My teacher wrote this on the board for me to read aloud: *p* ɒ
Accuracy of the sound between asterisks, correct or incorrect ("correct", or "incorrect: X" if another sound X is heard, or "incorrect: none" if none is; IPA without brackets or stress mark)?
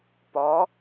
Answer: correct